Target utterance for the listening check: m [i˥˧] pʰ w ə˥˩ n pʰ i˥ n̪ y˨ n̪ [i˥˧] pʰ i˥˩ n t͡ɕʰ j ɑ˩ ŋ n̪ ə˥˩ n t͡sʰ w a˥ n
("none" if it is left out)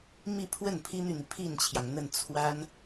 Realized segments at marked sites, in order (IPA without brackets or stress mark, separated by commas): i˥˧, i˩